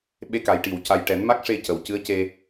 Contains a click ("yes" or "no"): no